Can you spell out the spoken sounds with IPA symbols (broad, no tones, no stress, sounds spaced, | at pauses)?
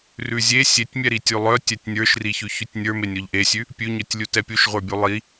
r ʉ zʲ e sʲ e tʲ mʲ ɛ ɾ i tʲ ʉ lˠ œ tʲ ɛ tʲ nʲ ə˞ ʃ r i ç ʉ ç ʉ tʲ nʲ ə˞ m e nʲ ɔ ʎ ʔ e sʲ ʉ | pʲ ʉ ɲ œ tʲ lʲ u t ɛ pʲ u ʃ ʁʷ ə˞ bʲ u lˠ i